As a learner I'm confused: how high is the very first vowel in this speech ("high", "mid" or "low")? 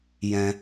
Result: mid